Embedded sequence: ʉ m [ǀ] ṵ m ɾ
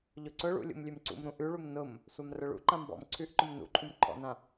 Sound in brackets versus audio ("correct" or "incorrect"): correct